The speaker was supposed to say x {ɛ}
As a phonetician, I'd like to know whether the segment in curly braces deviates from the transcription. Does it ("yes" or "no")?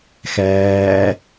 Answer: yes